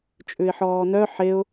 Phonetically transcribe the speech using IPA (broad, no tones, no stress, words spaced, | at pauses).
t͡ʃʼʉɪ̯ħɔːnœ ħeʊ̯